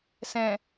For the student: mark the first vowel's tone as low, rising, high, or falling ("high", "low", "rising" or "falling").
low